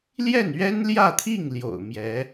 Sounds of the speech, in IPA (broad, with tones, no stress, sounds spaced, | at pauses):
l j ɛ˥˩ n ɥ ɛ˥ n l j ä˥˧ t̪ʰ i˥˩ ŋ l j o̰˨˩ ʊ̯ m j ɛ˧˥